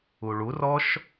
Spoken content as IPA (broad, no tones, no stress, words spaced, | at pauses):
uɭurɔʃ